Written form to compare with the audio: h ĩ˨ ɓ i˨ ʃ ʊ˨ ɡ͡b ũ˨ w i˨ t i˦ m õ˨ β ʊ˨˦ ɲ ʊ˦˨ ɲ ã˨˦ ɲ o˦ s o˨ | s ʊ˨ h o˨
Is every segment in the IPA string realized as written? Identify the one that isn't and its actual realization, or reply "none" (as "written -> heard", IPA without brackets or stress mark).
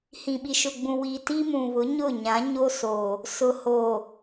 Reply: õ˨ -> ũ˨